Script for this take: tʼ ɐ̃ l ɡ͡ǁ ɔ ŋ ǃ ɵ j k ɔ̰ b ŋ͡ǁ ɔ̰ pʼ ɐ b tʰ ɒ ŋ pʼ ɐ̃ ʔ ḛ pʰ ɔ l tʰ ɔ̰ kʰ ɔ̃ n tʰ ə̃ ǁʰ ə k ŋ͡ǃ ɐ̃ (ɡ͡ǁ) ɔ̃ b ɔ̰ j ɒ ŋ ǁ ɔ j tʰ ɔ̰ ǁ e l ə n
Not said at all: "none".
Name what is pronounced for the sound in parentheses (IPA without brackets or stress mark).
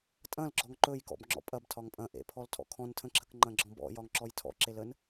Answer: ɡ͡ǁ